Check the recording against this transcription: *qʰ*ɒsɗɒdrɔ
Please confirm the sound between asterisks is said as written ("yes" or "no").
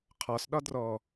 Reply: yes